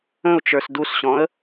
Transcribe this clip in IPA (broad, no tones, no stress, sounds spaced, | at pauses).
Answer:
ə̃ ʊ̯ t͡ʃ ə˞ s d u s ɕ ɔ̃ ə̯